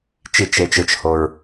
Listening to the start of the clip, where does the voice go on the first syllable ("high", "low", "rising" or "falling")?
falling